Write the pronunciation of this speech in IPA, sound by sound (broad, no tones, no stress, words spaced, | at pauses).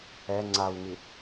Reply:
ɛ ŋ͡ǀawŋi